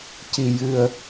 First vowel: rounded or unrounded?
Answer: unrounded